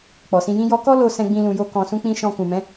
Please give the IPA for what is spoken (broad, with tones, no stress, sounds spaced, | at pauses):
k͡p ɔ˨ s ĩ˧ j ĩ˦ j ɔ˦ k ɔ˦ l o˧ s ɛ̃˦ ɡ͡b ĩ˦ l ũ˧ j o˦ k ɔ̃˧ s ũ˦ k͡p ĩ˦ ʃ ɔ̃˧ k ũ˨ m ɛ̃˨˦